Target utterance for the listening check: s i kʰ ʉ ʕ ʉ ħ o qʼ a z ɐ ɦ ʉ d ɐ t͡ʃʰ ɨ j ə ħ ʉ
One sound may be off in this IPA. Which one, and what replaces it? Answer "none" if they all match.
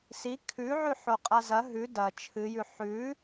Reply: ə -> ʉ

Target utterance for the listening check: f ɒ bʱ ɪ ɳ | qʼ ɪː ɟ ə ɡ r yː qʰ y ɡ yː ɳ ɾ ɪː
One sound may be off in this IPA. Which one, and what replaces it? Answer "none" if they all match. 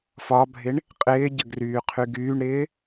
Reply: none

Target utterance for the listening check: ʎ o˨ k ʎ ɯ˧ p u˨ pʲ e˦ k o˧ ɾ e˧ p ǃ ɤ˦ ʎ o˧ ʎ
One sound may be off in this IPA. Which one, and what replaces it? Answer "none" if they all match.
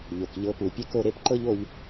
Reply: ɯ˧ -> ɤ˧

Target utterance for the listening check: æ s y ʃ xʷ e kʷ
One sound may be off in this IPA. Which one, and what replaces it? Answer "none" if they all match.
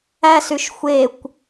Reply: none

